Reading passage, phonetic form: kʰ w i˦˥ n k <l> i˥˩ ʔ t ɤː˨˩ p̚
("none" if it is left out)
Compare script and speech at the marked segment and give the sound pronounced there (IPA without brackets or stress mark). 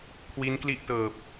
l